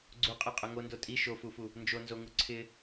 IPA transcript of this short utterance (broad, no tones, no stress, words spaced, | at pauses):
ɡ͡ǀuqʼɛqʼʊ ŋondo tʼi ʃofufu | nd͡ʒonzoŋu ǀʰɪ